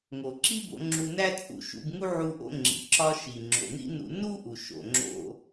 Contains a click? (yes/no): yes